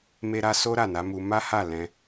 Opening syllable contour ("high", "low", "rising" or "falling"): high